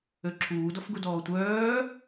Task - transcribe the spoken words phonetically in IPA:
øǁʰuːdɔfɡud ɔːtʷœː

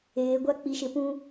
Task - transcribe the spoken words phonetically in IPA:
eː˨˦ɡʷa˦k͡pi˨˦ ʃɪ˨pũ˦

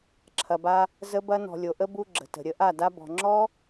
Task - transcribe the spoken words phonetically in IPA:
ǁʰɐ˨ba˧ | zə˧bɐ˧ nɔ̤˨lʲo˨ʔə˦ bu˧ ɡ͡ǁə̤˨tə̤˨ɾʲə˧ ʔa˦˨ da˦ bɔ̤˨ŋ͡ǁɔ˦

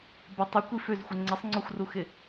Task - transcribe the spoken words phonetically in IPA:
bə tˤokʷi føzxʷə ŋ͡ǀəsˤŋ͡ǀɔxʷruxɪ

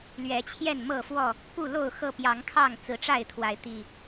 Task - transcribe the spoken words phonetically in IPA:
lɥɛ˨˦t͡ɕʰjɛ˥˨nmɤ˥˨fwɔ˥˨ | pu˥˨lo˥˨ʊ̯xɤ˥˨ pjɑ˨˦ŋkʰɑ˥˨ŋ t͡sɹ̩˨˦ʈ͡ʂa˥˨ɪ̯t̪ʰwa˨˦ɪ̯ t̪i˨˩

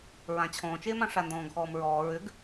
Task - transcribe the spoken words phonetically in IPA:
ɹãt͡ɕʰɔ̃ːt͡ʃeːmã ʂandɔ̃ːɡxɔːmɹɔː ɹʏɡ

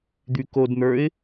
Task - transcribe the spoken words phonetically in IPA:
d̪ykodn̪ə˞ɪ̯

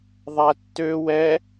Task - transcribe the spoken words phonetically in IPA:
ðˤætːø wɛ

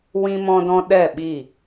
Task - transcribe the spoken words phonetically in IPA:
wĩ˧mɔ̃˧dɔ̃˧ ɗɛ˦˨ɓi˦˨

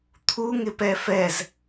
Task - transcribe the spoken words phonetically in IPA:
t̪ʰuŋɪpɛ fɛz

